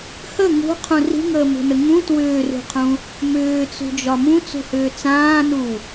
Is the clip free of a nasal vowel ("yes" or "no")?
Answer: no